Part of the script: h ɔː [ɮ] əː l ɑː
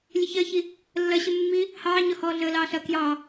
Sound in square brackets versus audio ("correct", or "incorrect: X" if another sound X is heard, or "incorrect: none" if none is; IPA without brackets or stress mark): correct